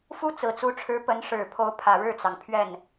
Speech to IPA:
f u˥ t͡s ɹ̩˨˩ t͡s u˧˥ ʈ͡ʂʰ ɻ̩˧˥ p ə˧˥ n ʂ ɻ̩˨˩ pʰ o˧˥ ʊ̯ pʰ ä˨˩ ɻ ɻ̩˥˩ t͡s ɑ˩ ŋ pʰ ɥ ɛ˥˩ n

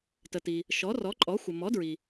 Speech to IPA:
t ə˩ t i˩ | ʃ ɔ˩˥ r ɔ˩˥ ǃʼ ɔ˩˥ xʷ ə˩ m ɔ˩˥ d ɹ i˩

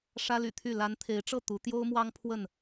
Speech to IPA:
ʂ ä˦ l y̰˨˩ t̪ʰ y˥˨ l a˨˦ n t̪ʰ e˨˦ ɪ̯ ʈ͡ʂ ɤ˥˨ t̪ u˨˦ t̪ j o˦ ʊ̯ m w ɑ˦ ŋ pʰ w ə˥˨ n

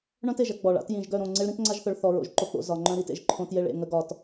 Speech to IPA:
ɳ œ̃˦ t e˨ ʒ ɐ˦ ɡ͡b ɔ˨ ɭ a̰˨˦ t j ĩ˨ ʒ ɡ œ˦˨ ɾ õ˦˨ ŋ͡ǀ e˦ ɭ ɾ ĩ˦ t ŋ͡ǀ a˦ ʒ θ œ˨ ɭ θ ɔ˨ ɹ o̰˨ ʒ ǃ o˦ k͡p o̰˨˦ z ɒ˨ ŋ͡ǃ œ̃˦ ɾ i˨˦ t ḛ˨ ʒ ǃʰ õ˦ t j e˦ ɭ ḛ˨ ŋ ə˨˦ ɡ ɒ˨ t

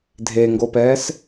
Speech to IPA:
dʱ e ŋ ɡ o p ɛː s

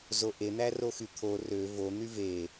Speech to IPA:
z o ʔ e n̪ æ r o x y t̪ʰ o r ø v o n̪ y v e

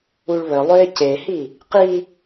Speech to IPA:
u ɭ β ə lˠ ø ɪ̯ c e h i | q i

